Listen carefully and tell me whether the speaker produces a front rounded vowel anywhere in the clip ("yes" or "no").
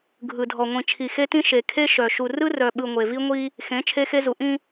yes